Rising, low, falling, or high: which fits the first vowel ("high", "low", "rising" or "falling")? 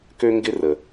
high